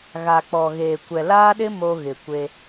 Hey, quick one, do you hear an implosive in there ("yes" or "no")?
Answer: yes